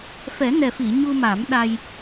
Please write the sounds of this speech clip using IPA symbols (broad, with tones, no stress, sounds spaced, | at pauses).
f ɛ˨˩˦ n ɛ˨˩ f i˨˩˨ ɲ u˧ m a˨˩˦ m ɗ a˧ j